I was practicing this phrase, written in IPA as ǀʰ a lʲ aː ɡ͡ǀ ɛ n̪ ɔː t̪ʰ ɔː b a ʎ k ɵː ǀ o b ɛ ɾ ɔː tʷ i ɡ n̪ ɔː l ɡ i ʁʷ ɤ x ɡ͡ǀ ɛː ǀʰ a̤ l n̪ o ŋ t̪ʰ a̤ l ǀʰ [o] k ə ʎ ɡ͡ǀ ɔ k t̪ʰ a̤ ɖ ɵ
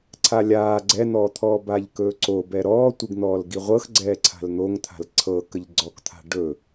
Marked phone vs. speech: incorrect: ɤ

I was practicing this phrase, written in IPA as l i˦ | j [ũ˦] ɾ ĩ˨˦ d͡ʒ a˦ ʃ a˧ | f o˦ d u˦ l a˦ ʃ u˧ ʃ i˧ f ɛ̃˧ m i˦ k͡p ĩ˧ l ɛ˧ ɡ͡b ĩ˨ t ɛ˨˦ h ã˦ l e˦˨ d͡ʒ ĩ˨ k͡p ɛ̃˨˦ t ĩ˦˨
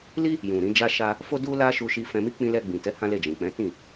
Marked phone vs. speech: incorrect: ũ˨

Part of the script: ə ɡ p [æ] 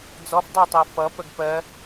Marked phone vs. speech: incorrect: ɜ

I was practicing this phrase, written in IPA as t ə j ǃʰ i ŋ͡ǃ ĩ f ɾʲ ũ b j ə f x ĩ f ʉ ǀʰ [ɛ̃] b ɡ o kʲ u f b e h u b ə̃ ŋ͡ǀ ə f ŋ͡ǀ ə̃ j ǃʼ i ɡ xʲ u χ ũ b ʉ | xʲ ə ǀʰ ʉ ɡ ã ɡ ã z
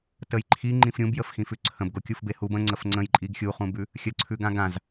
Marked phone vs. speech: incorrect: ə̃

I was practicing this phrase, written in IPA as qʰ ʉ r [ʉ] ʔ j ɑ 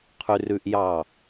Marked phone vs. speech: correct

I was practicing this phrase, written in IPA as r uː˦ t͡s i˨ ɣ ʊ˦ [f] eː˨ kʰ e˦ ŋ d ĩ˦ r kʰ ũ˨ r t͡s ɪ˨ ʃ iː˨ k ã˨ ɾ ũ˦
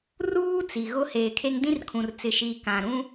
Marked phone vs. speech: incorrect: h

